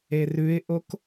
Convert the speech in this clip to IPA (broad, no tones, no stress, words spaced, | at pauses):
erʉɪ̯ʔok